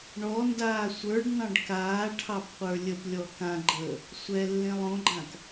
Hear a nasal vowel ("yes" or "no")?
yes